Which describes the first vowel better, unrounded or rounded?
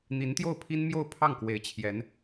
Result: unrounded